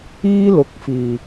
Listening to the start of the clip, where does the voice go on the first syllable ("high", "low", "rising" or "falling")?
high